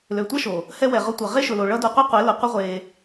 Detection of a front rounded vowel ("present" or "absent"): present